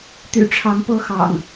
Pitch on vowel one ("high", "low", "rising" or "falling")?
low